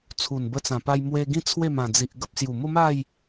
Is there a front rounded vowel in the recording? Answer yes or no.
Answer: no